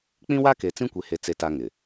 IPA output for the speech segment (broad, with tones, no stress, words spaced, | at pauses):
k͡pĩ˦wa˦ke˨ t͡sĩ˦kʷe˨he˨ t͡se˨ta˨ ŋɪ˨